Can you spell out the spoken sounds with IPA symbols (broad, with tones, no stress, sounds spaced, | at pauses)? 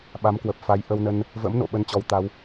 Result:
ɓ a˨˦ m k w ə˨˩ p̚ f a˨˦ j ʔ ə˧ w n ə˧ n | v ə̰˧˥ m n o̰˧˨ ɓ ə˧ n t͡ɕ ɔ˨˦ w t̪ a˨˦ w